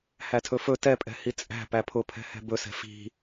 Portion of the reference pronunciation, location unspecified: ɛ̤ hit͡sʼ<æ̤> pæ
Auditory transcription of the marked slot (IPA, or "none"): æ̤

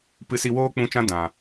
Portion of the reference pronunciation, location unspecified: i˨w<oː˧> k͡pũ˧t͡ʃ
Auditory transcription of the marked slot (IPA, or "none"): oː˧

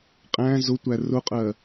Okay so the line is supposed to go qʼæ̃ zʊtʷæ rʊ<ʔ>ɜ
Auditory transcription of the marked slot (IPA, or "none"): qʼ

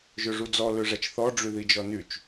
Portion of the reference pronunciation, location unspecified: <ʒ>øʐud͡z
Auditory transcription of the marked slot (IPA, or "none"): ʒ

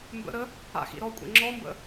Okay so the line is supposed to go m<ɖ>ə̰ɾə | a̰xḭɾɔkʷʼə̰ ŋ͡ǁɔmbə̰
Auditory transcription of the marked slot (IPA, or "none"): b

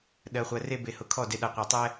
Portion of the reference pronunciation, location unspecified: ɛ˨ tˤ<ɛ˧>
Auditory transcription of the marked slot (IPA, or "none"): ɛ˧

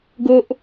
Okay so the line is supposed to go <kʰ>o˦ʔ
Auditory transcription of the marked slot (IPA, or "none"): ɡ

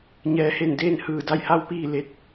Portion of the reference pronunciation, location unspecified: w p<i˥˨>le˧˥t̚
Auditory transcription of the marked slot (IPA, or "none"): iː˥˨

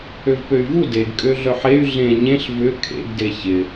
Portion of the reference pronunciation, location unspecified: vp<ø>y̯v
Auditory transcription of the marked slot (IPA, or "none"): ø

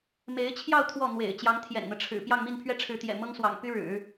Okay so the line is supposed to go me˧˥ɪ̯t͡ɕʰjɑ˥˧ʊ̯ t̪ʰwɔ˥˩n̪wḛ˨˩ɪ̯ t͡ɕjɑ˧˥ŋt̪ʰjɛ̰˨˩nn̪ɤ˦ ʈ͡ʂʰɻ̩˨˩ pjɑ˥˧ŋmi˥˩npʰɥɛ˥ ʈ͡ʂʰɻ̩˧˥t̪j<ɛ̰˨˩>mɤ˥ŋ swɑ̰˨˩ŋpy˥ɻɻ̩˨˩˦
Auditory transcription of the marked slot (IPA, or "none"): ɛ̰˨˩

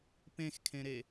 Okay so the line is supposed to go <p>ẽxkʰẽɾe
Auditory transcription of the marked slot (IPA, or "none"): p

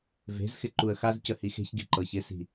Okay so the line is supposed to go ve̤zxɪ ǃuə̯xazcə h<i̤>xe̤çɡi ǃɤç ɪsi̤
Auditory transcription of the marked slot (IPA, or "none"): i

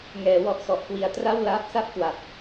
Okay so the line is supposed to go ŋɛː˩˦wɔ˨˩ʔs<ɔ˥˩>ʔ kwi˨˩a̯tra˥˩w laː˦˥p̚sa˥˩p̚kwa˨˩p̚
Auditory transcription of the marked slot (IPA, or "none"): ɔ˨˩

